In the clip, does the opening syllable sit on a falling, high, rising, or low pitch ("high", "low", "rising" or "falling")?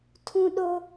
high